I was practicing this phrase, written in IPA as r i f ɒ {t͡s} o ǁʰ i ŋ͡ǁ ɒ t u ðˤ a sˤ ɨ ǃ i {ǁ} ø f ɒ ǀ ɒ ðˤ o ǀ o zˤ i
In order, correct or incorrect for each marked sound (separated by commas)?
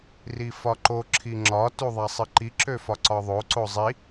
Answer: incorrect, correct